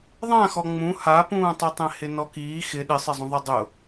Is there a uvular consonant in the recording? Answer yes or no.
no